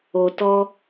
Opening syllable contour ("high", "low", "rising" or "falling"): low